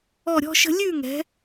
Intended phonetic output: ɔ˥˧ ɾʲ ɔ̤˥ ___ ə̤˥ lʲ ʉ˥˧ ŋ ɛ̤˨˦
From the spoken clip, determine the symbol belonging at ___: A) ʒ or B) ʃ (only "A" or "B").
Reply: B